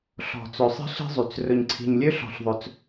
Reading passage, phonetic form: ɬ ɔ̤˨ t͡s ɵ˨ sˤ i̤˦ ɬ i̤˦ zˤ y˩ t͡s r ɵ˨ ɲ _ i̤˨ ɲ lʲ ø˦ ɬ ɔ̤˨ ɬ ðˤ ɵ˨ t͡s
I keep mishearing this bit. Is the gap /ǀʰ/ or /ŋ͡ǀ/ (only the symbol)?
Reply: ǀʰ